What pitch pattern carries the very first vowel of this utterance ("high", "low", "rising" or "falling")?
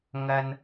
high